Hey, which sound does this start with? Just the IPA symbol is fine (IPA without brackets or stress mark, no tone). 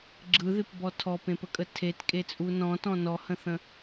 ɡ͡ǁ